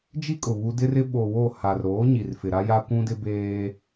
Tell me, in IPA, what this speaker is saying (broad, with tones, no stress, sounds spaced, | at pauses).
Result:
d͡ʒ i˦ kʼ ʊ˨ β u˦ d ɪ˦ r ɪ˦ ɓ o˨ w o˦˨ h a˨ r ɾ oː˨˦ ɲ i˨ r f ɪ˨ ɾ a˦ j a˦ kʷ ũ˦ d ɪ˦ b eː˦